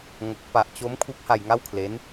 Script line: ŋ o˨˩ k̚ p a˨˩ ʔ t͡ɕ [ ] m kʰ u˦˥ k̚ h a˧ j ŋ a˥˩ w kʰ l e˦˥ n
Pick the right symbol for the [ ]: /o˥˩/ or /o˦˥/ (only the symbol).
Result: o˦˥